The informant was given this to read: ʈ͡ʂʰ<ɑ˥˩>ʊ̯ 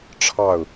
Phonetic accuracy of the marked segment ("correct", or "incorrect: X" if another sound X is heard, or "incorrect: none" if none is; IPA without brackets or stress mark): correct